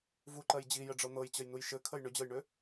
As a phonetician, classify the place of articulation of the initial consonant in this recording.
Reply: labial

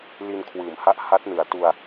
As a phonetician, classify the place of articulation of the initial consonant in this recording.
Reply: alveolar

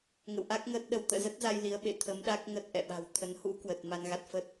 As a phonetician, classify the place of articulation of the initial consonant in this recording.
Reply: velar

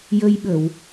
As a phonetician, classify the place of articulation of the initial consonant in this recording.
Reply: palatal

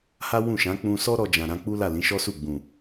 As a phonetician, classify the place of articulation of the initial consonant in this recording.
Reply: glottal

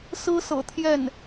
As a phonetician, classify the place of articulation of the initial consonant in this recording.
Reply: alveolar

